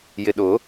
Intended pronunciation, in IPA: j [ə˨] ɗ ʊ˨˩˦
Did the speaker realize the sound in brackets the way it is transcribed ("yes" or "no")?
no